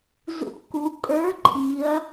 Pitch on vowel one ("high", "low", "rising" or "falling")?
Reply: rising